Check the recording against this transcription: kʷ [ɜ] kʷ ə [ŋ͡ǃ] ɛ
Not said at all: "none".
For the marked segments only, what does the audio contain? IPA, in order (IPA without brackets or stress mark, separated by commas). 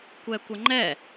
ɛ, ŋ͡ǃ